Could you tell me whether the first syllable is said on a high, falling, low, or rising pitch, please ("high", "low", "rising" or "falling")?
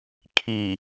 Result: low